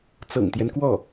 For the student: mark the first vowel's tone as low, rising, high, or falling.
low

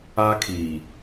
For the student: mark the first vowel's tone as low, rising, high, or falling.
high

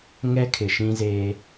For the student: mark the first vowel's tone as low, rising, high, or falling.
high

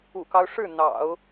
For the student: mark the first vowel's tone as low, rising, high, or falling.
low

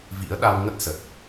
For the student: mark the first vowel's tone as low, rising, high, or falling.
rising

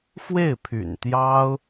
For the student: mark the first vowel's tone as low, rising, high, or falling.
falling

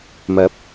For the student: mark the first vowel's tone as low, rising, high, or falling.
rising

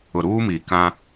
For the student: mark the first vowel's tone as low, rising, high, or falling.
low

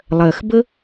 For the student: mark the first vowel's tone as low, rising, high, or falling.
low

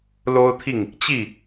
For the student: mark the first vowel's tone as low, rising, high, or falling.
high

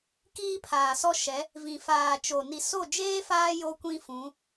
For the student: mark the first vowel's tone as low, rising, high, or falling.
high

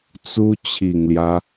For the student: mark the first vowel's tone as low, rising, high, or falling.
high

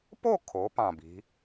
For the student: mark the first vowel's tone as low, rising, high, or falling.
falling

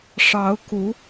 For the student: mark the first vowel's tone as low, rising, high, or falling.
rising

